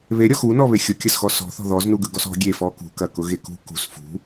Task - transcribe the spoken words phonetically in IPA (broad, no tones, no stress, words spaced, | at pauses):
βeɾʲɔ xunɔβe xʲʊkʲɐsxɔ sɔ̤θɔ̤ ðɔznu ɡɯɡɔsɔ̤ ɡʲefɔ kṳkɐkʊ ɣekṳ kṳs fṳ